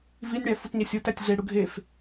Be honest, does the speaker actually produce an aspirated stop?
no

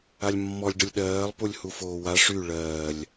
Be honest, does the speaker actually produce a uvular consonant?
no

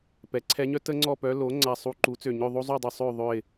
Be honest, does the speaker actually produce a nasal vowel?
no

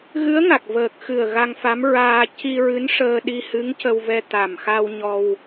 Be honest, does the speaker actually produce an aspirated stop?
no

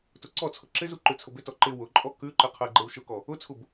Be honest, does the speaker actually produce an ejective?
yes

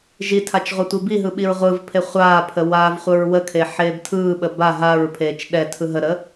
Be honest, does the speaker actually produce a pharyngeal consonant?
yes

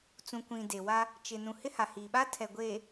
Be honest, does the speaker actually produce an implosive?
yes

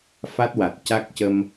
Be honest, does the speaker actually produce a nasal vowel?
no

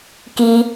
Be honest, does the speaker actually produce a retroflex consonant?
no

